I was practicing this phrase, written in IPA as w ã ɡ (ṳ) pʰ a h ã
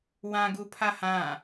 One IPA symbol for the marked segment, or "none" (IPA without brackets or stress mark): u